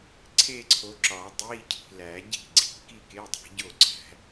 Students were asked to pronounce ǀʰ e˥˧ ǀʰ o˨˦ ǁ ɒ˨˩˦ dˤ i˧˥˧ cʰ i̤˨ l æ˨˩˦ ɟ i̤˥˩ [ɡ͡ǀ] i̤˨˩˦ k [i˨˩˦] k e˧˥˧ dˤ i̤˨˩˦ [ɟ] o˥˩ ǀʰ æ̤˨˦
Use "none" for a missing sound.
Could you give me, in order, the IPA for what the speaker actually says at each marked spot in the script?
ɡ͡ǀ, i˥˧, ɟ

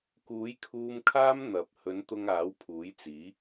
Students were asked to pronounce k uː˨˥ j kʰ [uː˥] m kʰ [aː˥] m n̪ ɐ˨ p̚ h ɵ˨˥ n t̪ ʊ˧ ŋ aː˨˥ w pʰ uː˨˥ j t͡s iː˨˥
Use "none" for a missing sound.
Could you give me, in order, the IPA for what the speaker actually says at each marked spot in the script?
uː˧, aː˥

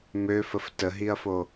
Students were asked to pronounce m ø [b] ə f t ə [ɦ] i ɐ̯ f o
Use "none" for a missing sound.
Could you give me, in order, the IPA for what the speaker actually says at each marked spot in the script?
f, ɦ

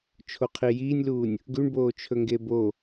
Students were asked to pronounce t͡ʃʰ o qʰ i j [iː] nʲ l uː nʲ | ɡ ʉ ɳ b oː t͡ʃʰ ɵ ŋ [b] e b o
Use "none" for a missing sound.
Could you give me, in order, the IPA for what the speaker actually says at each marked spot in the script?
iː, ɡ

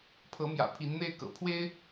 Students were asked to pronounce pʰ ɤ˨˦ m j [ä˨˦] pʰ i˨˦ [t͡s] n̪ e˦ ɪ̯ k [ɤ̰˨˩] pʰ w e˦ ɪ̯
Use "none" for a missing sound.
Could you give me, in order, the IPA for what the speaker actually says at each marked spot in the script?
ä̰˨˩, n, ɤ̰˨˩

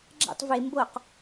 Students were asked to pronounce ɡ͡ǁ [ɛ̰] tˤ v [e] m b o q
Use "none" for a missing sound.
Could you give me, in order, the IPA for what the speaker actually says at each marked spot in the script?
ɛ̰, e

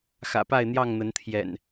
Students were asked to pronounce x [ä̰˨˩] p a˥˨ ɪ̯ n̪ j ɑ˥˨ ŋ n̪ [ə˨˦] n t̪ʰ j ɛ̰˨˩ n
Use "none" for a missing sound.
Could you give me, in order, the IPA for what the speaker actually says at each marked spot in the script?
ä̰˨˩, ə˨˦

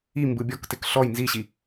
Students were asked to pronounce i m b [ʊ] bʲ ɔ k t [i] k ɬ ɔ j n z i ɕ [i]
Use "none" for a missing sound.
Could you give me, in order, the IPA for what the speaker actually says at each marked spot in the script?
ɯ, ɪ, i

